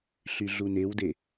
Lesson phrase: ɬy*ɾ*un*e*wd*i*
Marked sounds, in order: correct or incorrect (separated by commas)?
incorrect, correct, incorrect